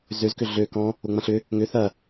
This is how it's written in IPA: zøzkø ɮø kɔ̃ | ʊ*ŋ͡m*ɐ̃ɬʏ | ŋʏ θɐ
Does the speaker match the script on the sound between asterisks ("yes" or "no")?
yes